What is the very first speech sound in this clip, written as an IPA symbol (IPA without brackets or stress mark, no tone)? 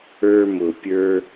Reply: ə˞